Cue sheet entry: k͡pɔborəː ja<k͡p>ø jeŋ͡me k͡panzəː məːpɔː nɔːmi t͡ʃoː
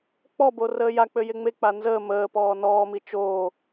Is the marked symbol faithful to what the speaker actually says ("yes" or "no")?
yes